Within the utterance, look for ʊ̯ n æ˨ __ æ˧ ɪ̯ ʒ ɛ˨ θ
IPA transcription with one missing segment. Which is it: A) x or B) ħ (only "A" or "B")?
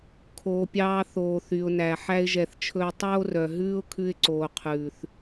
B